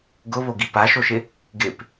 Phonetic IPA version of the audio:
ɡ ʊ β o ɡ i p a ʃ o ʃ ɪ | ɡ ɪ p

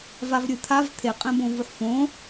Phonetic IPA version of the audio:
v a v ɾʲ ɨ t̪ʰ a v t̪ʰ e qʼ ɛ̃ b õ v u ħ f õ

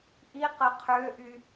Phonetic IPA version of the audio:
ʔ i q ə qʰ ø ʔ y

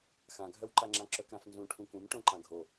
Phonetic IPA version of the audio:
x ã ɡʱ œ w ǃ a ŋ͡ǁ ã ǁ œ k ɾ ã f n z ũ ʈʰ ũ k ũ m ʈ õ ǃ ã ɡʱ o

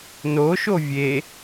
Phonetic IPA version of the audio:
n o ʃ o vʲ e

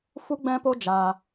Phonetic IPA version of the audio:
f u˦ ɡ͡b ɛ̃˦ p o˦ d͡ʒ aː˧

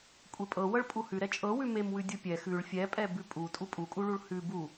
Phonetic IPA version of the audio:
kʷʼ e pʼ ɤ w ɤ ɭ pʼ u h ʉ ɾ ɛ t͡ʃʼ ɤ w ʉ m e m w ʉ dʲ u pʲ ɛ x ʉ ɭ fʲ ɛ pʼ ɛ b ʉ pʼ u tʼ u pʼ u kʼ u ɭ u ɭ h ʉ b u

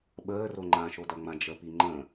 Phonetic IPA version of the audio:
ɓ əː r o ŋ͡ǃ ã ʃ o d ɐ ŋ͡m ã d͡ʒ ə p i ŋ͡ǃ ə̃

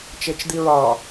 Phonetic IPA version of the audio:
t͡ʃ e t͡ʃ d̪ i ɹ ɑ

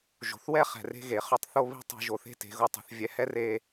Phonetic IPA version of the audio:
ʒ o̤˨ θ w ɛ˦ χ ɛ̤˨ r e̤˧ ɣ e˨ χ ø˦ tˤ θ o˦ β i̤˦ tˤ i̤˧ ʒ o˧ θ e̤˦ t e̤˨˦ ɣ o˧ tˤ ɛ̤˧ θ vʲ ɛ˦ h ɛ˦ r e˧

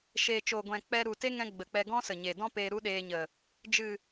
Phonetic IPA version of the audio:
ʃ eː˨ t͡ʃ oː˨ ɡʷ ɛ̃˨ k͡p ɛ˧ ɾ u˨ t e˦ ŋ ɛ̃˧ ɡ͡b ə˨ k͡p ɛ˧ ɡ ɔ̃˦ s ə˨ ɲ e˨ d ɔ̃˦ p eː˧ ɾ u˦ ɗ eː˧ ɲ ə˨ | d͡ʒ ɨ˨

